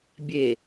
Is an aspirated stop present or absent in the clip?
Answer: absent